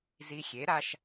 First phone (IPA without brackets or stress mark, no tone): z